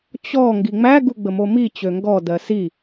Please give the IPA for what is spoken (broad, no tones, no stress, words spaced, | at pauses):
t͡ɕɔ ŋɡiŋ͡mæɡu ɡ͡bəmomi t͡ɕøŋɡɔ dɜsi